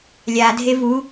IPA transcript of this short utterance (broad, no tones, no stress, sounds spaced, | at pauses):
lʲ a dʱ e v u